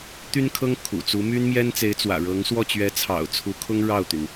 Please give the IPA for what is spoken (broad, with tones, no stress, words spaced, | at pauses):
t̪y˥nkʰɤ˥ŋ kʰṵ˨˩t͡su˧˥ my˥nmjɛ˥nt͡se˧˥ɪ̯t͡swä̰˨˩ ɻɤ˧˥ŋ swɔ˥˩t͡ɕɥɛ˧˥t͡sʰɑ̰˨˩ʊ̯ t͡sʰu˧˥kʰʊ˥ŋ ɻɑ˥˩ʊ̯t̪y˩n